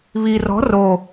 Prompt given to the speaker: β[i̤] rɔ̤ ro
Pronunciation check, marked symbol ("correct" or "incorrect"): incorrect